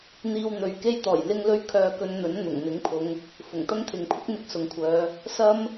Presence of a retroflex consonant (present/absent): absent